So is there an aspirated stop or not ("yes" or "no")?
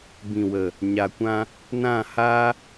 no